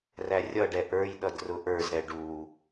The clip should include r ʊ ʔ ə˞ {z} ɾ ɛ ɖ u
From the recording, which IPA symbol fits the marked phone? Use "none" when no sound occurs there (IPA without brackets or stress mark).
z